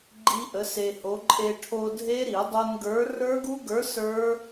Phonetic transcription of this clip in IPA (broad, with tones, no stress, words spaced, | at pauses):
ɡ͡ǃi˦˥ʔə˨˥se˧ho˨˥ ǃʼe˧ʈʰo˧dʱe˦˥ ɾi˨˩˦dˤo˧nɡə˞˨˥ rə˞˦˥ɡu˦˥ɡə˞˨˥ sə˞˦˥